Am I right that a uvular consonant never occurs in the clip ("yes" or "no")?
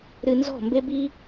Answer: yes